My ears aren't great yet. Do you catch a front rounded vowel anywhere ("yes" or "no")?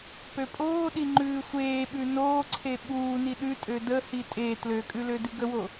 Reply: yes